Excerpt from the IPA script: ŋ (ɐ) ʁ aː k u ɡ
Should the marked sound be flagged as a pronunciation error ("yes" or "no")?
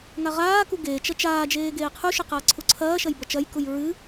yes